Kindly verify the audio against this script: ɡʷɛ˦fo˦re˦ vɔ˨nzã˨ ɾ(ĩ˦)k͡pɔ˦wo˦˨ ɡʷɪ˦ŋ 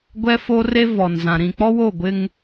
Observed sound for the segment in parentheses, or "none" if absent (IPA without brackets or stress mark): ĩ˨